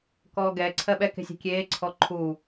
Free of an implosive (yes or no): no